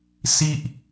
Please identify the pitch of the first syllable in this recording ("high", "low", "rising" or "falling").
high